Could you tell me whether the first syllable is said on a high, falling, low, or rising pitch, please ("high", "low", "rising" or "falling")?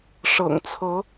low